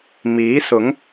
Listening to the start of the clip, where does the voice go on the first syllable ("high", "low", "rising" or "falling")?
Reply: rising